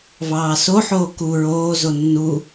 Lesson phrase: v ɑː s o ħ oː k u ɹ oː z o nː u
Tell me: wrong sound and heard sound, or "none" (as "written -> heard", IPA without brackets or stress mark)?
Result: none